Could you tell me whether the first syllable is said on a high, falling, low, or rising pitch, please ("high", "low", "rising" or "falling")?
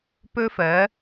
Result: high